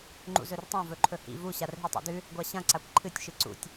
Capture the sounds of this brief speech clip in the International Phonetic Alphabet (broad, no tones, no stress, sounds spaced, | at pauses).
ŋ͡ǃ ṵ z ɵ r tˤ ã v ɵ ǃʰ ɵ h ḭ v u ɕ a r ɦ i tˤ a̰ d ʉ | ɡʷ a ɕ ɐ̃ ǀ a kʷ ǃʰ ɨ tʲ ʃ ɨ ǀ ṵ tʲ